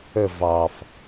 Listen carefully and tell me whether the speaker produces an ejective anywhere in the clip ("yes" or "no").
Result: no